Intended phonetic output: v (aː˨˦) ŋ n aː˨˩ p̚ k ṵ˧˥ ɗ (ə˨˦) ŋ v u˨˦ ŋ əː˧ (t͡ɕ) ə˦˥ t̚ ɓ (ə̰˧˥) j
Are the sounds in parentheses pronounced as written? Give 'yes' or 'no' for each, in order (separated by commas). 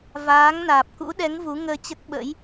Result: yes, no, yes, yes